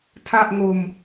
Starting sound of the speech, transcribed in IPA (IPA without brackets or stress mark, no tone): tʰ